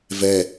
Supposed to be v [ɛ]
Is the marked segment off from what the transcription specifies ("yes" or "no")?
no